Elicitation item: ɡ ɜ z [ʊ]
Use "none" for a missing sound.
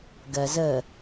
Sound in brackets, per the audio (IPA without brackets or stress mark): ə